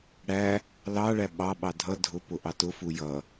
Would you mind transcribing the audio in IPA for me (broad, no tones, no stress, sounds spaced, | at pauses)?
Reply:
ɽ æ | l ɑ ɭ æ ɓ ɑ ɓ ɑ dʱ ʌ dʱ ʊ p ʊ ʔ ɑ t ʊ f u j ʌ